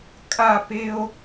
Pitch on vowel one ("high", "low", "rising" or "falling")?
falling